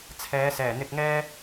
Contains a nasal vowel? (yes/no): no